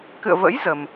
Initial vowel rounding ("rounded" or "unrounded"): unrounded